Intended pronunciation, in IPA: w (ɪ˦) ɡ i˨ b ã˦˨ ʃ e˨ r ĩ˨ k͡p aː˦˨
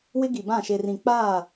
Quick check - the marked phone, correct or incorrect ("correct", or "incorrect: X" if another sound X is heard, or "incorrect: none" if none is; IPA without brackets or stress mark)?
correct